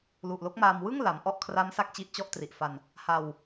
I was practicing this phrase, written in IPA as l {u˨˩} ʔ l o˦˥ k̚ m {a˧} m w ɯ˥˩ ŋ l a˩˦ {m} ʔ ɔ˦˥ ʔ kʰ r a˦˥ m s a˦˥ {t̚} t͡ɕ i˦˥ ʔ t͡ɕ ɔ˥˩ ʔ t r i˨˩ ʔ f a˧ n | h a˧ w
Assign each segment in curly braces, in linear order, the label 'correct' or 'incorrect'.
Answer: correct, incorrect, correct, incorrect

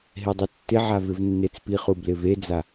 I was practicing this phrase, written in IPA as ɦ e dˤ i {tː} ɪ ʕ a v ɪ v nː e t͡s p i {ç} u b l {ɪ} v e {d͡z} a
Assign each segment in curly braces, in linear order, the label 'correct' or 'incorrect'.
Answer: correct, incorrect, correct, correct

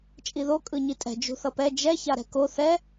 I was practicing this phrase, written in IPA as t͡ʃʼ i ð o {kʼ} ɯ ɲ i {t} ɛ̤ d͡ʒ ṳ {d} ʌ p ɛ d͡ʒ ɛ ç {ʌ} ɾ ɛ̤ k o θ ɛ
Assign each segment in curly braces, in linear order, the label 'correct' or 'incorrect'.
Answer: correct, incorrect, incorrect, incorrect

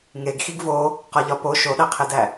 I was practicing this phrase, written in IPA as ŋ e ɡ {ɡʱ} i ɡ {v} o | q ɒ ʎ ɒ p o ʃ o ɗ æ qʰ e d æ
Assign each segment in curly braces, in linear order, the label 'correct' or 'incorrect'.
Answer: incorrect, correct

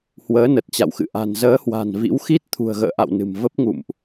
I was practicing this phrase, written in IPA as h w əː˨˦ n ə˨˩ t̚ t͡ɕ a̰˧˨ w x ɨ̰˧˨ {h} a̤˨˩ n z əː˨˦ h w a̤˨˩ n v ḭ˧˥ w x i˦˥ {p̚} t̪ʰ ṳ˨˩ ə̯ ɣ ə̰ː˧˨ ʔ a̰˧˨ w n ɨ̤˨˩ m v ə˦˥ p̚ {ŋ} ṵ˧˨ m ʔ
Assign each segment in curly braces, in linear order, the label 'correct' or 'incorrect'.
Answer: incorrect, incorrect, correct

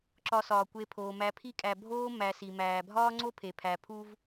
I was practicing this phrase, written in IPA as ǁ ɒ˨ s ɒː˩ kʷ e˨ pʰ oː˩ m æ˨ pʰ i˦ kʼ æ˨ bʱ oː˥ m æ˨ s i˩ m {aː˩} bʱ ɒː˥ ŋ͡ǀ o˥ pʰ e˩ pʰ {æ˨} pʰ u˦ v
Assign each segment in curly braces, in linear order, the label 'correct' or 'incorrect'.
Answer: incorrect, correct

